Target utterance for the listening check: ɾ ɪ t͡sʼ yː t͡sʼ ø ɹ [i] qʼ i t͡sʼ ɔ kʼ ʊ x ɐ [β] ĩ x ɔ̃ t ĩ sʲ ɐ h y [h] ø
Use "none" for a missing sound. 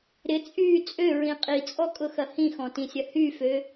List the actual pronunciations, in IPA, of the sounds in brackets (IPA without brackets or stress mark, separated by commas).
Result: ĩ, h, f